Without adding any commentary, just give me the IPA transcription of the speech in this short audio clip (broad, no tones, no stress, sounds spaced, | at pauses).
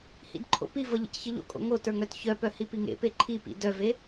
h ḭ d ǃʰ o̰ p i v ʌ ʎ ḭ c ç ʌ ʎ o̰ kʼ o̰ ŋ o t ə˞ ŋ œ t ç œ p œ h i p i ŋ ḛ p e ǃʰ i p ḭ d œ v e